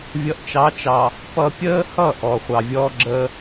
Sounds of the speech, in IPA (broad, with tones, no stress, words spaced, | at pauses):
vʲʌ˨ʔt͡ʃɑ˨˦t͡ʃɑ˨ | pʌ˨pʲəː˦hʌ˦˨ ʔɔ˨χʷɑ˨vʲɔː˦ɡ͡ǁəː˦